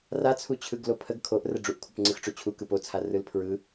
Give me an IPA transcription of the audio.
rat͡sʰu t͡ɕʰɯɡlopʰəɡ kʰoʔ rəɖ͡ʐuʔkʷʰəp ŋ͡ǀɯxʈ͡ʂot͡ɕʰu kɯpot͡sʰa rɯlpʰɹɯ

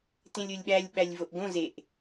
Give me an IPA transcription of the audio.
tẽlʲolʲɓælʲ ɓælʲvoʔɡõ zeʔ

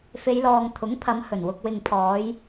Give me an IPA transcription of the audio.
fe˨˧jlɔː˨ŋ t̪ʰʊ˨˥ŋ pʰɐ˨˧m hɵ˨˩nwʊ˨k̚wɪ˨ŋpʰɔː˨˧j

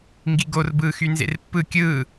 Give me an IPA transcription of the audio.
ŋɡiɡorbɯːxy nzḛrpːɯ kʲɯː

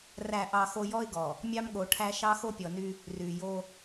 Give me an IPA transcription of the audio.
ræ˨ʔɑ˨xo˨ jɔ˦ɪ̯ɡɔ˨ | mʲɑ˦mɠo˨ʈʰæ˦ ʃɑ˦xo˦pʲɔ˨ny˦ | ry˨jo˦

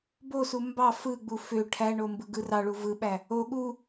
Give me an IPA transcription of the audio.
bosu mbɑ fɯɡ͡bu fø ʈʰæɳo mbɯɡɯrɑɭu vɯɓæ | o ɠu

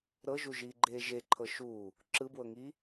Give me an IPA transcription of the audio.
ɾɤʒuʒiːɡ͡ǃeː ʒeǃʰɤ ʃuː | ǁɯbwɤŋiː

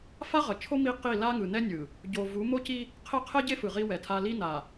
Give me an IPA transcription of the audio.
fa˦ʁʌ˨t͡ʃʰo˦ mi˦ qi˦˨ la˦ŋɯ˨ nɛ˦nʲɯ˨ | ɟo˨ vu˨˦ mo˦ci˦ | qʰɛ˦qʰɛ˦ɟe˦ fɯ˨ʁi˦wɛ˨tʰa˦ li˦na˨

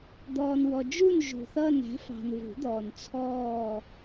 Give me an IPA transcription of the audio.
d̪ɔː˨nwɔ˨d͡ʒu˦˨n ʒṳ˨θʌː˦˨næ̤˩˥fɑ̤˨n vṳ˨˩˦d̪ɔː˨n t͡sʰɔː˦˨

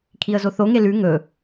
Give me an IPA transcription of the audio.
kʰiə̯zoθo ŋelʉ ŋɵ

